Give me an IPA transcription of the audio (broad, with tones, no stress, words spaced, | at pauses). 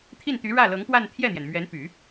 t̪ʰi˥˩nt̪y˧˥ ɻä˥˩lɤ˧˥ŋpwa˥˧n t̪ʰjɛ˥˩n̪jɛ˩n mɥɛ˧˥npy˨˩˦